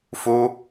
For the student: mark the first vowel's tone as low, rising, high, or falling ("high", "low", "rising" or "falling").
high